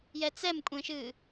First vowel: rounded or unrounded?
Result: unrounded